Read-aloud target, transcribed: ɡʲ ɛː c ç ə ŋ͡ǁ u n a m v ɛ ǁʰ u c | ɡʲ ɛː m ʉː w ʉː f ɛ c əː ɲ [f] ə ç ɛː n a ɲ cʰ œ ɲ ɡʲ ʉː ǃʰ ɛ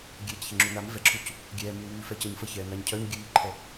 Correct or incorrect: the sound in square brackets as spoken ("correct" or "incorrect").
correct